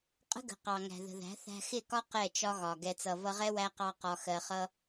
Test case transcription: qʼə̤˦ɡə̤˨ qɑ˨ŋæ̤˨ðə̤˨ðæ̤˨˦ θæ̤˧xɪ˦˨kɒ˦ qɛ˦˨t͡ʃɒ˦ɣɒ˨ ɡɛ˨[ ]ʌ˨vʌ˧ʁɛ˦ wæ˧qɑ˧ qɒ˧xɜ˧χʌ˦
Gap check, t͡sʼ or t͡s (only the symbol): t͡s